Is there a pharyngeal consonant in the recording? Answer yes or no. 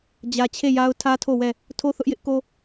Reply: no